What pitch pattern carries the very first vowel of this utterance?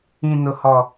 low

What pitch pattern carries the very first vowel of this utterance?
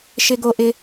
high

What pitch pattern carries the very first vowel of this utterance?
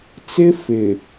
high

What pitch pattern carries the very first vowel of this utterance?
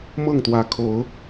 falling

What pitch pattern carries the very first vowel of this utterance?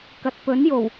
low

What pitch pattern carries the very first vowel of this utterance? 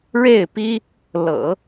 falling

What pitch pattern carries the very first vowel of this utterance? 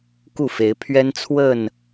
falling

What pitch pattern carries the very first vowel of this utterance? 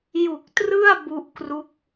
low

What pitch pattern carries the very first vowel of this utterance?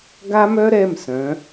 high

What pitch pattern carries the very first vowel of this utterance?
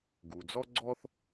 low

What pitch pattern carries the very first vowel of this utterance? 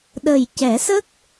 low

